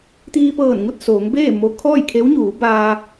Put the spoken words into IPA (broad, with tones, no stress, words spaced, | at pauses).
t̪iː˧pɤː˧˩nŋu˥˨t̚ soː˩˧ŋbeː˥˨ mo˧ kʰɔː˥˨jkʰe˧˥wɲuː˩˧baː˧